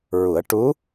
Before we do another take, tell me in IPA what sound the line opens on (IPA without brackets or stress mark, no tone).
ɹ